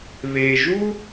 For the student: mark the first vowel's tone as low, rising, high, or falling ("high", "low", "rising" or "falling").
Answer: low